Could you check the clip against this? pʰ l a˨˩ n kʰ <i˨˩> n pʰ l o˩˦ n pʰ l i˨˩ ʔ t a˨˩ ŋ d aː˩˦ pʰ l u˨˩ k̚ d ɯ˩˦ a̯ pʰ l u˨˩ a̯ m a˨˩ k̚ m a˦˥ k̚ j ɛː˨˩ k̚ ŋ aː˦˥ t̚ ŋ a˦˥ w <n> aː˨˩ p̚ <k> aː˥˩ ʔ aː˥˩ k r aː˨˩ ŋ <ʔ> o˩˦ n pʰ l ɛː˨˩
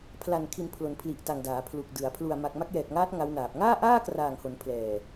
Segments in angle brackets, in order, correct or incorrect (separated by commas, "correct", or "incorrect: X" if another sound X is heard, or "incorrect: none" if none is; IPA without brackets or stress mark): correct, correct, incorrect: ŋ, incorrect: h